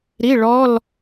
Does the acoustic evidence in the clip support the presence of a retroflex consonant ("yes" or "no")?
yes